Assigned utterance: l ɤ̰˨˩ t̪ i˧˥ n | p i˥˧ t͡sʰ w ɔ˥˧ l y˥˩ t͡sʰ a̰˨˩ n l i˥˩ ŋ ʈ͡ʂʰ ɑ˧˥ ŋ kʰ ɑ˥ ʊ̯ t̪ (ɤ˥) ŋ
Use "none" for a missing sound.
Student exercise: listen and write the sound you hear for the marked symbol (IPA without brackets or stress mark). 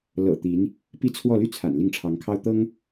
ɤ˥